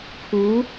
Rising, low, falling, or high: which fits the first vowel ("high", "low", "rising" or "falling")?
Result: rising